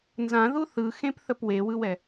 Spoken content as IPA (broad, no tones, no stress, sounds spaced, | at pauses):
n z ã ð u θ ɯ x ẽ p θ ə p w e w ɯ w ɛ